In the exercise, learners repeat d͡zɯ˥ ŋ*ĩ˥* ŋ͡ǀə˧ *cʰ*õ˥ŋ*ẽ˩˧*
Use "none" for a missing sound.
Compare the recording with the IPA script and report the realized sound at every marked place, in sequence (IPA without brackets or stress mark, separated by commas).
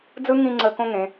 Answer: ĩ˥˧, k, ẽ˩˧